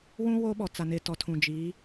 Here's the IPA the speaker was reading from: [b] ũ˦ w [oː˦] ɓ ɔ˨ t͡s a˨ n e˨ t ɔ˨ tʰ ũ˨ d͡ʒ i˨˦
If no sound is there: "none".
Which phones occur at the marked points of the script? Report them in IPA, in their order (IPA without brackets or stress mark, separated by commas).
w, oː˦